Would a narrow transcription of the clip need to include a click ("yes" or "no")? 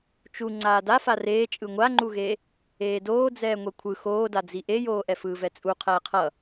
yes